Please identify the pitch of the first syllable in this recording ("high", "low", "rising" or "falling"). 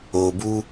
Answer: low